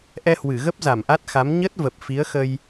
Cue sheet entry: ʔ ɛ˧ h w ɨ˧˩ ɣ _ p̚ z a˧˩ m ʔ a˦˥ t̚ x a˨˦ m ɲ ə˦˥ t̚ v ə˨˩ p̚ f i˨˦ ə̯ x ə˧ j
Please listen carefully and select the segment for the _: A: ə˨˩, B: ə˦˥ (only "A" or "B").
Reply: B